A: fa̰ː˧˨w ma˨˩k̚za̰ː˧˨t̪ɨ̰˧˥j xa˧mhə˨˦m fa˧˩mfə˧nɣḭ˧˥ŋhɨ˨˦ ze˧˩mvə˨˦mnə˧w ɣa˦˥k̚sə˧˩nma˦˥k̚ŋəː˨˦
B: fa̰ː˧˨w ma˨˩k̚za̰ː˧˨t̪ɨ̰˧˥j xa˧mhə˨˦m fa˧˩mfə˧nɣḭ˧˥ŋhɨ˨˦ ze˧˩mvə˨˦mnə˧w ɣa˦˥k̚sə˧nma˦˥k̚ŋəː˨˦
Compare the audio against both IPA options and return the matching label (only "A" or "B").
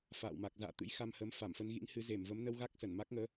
A